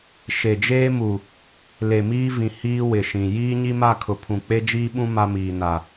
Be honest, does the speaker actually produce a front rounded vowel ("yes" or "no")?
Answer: no